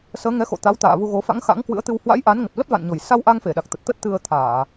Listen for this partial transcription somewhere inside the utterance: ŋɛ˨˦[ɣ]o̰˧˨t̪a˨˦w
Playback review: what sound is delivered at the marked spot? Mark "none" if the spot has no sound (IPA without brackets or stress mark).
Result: x